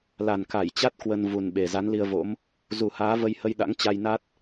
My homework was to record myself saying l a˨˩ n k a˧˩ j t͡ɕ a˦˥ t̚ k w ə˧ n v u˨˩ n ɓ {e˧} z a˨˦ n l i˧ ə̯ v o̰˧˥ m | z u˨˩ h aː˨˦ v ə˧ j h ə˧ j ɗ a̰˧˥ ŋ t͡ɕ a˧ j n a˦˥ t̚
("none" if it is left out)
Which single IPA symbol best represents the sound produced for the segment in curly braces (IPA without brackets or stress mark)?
e˨˩